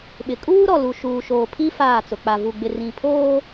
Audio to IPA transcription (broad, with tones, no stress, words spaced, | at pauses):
ɓɪ˨ kʼuː˦ɾɔ˨lu˨ ʃuː˨ʃoː˨pʰi˦ faː˦˨t͡sʊ˨ k͡pa˨vu˨ ɡ͡bɪ˨rĩ˨pʰoː˦